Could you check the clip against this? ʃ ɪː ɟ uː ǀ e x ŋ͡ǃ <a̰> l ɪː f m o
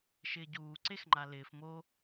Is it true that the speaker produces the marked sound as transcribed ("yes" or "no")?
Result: no